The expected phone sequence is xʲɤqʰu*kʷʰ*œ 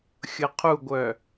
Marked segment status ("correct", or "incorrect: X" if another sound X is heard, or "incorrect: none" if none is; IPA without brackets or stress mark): incorrect: ɡʷ